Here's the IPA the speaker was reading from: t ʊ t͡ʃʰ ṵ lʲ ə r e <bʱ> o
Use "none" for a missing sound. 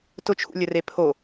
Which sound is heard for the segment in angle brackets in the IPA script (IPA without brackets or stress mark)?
pʰ